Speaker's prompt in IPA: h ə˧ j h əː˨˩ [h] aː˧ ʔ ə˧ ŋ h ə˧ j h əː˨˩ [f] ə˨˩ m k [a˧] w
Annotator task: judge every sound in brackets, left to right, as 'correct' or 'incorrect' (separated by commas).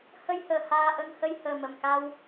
correct, incorrect, correct